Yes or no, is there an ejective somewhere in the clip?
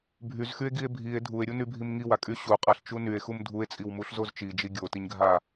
yes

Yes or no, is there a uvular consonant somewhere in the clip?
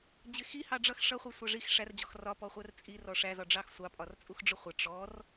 yes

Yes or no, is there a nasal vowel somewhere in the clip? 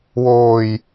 no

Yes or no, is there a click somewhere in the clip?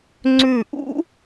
yes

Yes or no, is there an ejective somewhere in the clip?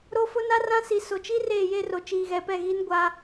no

